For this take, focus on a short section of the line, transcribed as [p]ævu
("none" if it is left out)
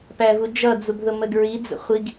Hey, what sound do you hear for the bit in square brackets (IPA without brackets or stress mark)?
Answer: p